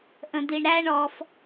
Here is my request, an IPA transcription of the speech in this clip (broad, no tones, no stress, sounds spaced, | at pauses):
ʔ ə̃ d̪ i ɳ ɾ æ ɳ ɔ f